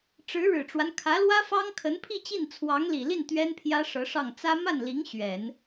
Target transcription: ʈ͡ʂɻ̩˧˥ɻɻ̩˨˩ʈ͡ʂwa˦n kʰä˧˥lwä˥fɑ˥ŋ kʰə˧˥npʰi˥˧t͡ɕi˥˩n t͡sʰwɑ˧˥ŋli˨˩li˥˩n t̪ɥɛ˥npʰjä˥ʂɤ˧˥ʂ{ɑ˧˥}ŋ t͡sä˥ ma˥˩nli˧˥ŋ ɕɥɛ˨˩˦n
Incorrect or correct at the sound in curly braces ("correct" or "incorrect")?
incorrect